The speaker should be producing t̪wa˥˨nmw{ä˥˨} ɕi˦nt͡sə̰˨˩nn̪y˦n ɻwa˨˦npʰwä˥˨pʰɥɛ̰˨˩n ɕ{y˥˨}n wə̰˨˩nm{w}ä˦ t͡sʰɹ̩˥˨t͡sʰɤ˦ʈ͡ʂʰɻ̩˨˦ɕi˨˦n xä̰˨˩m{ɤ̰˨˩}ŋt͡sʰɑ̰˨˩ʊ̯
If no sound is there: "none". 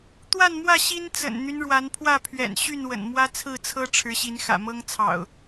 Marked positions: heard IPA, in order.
ä˥˨, y˥˨, w, ɤ˦

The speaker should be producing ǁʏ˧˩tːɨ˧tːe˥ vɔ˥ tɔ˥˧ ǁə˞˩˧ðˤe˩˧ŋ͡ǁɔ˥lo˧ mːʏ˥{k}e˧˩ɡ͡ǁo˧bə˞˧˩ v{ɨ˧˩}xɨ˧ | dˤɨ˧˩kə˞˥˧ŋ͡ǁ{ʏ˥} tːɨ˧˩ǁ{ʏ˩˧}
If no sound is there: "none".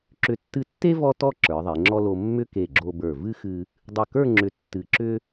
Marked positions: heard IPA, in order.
k, ɨ˥, ʏ˧˩, ʏ˥

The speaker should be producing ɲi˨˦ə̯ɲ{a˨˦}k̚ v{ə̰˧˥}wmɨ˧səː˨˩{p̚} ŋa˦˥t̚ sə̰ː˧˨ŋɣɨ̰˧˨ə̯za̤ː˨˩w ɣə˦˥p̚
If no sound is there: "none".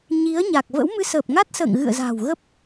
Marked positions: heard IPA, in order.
a˨˩, ə̰˧˥, p̚

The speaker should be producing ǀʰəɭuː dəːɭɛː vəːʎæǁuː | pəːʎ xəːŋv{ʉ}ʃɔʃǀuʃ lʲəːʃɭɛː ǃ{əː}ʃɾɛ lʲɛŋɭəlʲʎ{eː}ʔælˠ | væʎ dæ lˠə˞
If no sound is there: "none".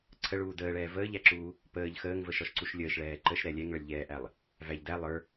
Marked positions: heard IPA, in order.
ə, ə, ɛː

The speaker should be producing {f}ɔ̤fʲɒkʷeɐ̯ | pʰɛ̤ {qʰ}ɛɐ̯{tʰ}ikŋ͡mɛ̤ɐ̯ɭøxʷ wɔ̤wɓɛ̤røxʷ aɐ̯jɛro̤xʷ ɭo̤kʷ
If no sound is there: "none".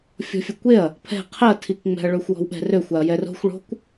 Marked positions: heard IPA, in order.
fʲ, qʰ, tʰ

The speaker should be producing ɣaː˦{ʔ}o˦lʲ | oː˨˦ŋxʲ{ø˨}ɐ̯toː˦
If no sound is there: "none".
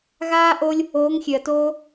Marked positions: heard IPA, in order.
ʔ, ø˨

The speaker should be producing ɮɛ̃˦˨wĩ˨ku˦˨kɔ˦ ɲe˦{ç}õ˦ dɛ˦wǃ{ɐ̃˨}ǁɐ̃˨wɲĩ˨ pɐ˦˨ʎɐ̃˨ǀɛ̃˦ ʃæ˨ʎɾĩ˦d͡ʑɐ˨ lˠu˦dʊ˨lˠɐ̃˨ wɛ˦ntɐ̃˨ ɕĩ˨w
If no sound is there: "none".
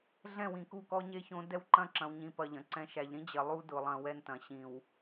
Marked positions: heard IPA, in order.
ç, ɐ̃˦

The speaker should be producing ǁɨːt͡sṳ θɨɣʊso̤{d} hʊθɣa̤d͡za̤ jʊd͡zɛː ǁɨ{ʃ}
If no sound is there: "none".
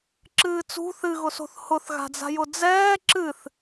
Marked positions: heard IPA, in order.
θ, θ

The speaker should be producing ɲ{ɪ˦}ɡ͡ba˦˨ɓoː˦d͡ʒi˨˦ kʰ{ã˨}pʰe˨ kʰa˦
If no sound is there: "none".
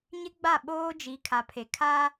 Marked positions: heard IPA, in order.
ɪ˦, a˨

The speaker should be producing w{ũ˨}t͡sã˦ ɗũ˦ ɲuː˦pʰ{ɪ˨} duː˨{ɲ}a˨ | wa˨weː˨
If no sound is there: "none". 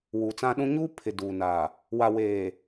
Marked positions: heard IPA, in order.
u˨, ɪ˨, n

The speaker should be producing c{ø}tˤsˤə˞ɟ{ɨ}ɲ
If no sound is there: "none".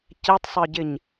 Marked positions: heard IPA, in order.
ɛ, ɪ

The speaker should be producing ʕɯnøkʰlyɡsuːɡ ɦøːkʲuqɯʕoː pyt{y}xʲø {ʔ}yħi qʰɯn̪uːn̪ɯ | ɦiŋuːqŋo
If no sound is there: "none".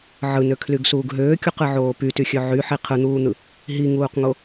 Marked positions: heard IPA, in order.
y, ʕ

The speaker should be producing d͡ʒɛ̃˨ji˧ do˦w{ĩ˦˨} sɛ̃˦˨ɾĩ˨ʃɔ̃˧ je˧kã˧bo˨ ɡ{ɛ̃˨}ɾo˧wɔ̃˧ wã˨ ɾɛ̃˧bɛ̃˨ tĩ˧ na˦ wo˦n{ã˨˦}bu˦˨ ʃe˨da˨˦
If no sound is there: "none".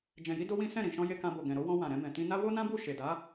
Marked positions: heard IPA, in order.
ĩ˦, ɛ̃˨, ã˦

